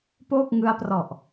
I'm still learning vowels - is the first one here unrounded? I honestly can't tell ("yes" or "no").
no